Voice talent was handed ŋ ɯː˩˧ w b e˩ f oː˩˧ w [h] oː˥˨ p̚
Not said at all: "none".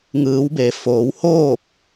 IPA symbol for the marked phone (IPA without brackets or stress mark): h